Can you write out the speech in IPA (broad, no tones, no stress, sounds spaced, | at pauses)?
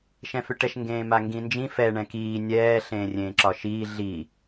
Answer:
ʃ ɛ̃ f ʏ ʈ ɛ ʃ ŋ ɡ ẽː m a ŋ ɡ ĩ n d͡ʒ ĩ f ɛ ɳ ɛ̃ k iː nʲ ɛː ɬ ẽː rʲ ẽː ǁ ɒ ʃ iː ɮ i